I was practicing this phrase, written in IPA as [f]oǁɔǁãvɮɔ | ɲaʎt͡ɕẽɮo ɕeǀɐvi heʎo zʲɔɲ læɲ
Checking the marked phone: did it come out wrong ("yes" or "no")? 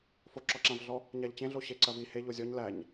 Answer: no